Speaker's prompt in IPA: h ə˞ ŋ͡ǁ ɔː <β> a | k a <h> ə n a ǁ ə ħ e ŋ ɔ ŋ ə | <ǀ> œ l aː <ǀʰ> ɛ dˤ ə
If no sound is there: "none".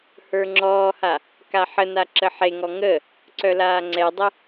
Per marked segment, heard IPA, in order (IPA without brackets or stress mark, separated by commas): h, ħ, ǀ, ŋ͡ǀ